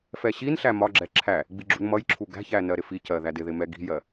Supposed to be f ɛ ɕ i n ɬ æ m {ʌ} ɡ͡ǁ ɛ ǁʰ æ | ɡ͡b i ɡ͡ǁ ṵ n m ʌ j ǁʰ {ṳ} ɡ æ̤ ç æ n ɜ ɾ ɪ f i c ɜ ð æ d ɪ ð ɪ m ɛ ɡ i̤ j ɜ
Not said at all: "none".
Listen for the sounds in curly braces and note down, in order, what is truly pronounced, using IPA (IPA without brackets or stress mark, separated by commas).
ɒ, u